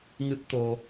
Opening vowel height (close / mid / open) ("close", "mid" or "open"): close